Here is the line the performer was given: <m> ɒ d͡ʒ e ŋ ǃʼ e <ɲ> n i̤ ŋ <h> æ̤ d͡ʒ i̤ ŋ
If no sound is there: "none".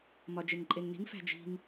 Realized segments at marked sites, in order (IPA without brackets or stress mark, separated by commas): m, ŋ, f